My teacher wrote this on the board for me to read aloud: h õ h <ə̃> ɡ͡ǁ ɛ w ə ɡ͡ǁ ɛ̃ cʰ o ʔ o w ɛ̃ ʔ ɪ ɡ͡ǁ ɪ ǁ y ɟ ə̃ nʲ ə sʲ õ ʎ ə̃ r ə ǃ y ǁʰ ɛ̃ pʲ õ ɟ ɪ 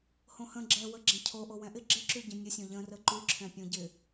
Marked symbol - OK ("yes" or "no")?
yes